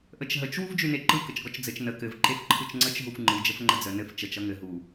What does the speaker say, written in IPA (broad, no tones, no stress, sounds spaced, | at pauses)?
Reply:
ʔ ə t͡ʃ ɦ ə t͡ʃ w u v d͡ʒ y n e ǃ ɯ k ə t͡ʃ ɡ ɔ t͡ʃ d͡z ɘ t͡ʃ n ə k ɘ v ǃ e f ǃʰ ɯ t͡ʃ ŋ͡ǀ ə t͡ʃ ɦ u f ŋ͡ǃ ɯ d͡ʒ ə f ŋ͡ǃ ə d͡z ə n ɘ f t͡ʃ ə t͡ʃ ʌ ŋ ɘ ɦ u